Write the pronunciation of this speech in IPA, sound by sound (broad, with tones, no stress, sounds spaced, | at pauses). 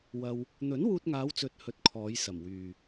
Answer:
w ɐ˧ w | n̪ ɵ˨˥ n w uː˧ t̚ ŋ aː˨˧ w t͡s ɵ˨ t̚ h ɵ˧ t̚ kʰ ɔː˨˧ j s ɐ˨˩ m w yː˨